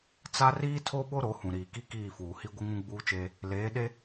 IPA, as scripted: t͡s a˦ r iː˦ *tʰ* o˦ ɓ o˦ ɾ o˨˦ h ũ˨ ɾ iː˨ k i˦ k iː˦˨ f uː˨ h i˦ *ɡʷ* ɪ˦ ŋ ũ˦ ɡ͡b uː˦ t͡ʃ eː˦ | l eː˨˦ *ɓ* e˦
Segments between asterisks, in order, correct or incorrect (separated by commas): correct, correct, incorrect